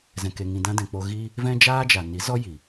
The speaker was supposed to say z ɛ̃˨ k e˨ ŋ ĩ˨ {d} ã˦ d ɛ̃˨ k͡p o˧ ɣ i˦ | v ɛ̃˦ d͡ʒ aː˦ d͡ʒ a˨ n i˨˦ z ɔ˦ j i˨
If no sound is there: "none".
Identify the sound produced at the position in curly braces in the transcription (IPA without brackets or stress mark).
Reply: d